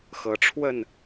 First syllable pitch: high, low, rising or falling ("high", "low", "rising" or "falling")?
rising